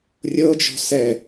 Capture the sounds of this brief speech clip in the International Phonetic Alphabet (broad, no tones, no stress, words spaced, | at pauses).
rʲɤd͡ʒɔ̤ sɛ